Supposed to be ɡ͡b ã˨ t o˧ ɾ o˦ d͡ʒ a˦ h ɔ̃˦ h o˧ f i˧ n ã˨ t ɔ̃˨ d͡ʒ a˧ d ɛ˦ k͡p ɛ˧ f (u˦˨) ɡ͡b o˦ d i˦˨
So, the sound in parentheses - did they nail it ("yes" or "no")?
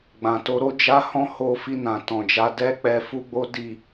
no